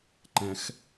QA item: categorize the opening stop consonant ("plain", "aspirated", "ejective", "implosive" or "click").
click